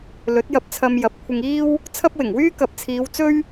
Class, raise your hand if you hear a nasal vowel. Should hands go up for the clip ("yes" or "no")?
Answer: no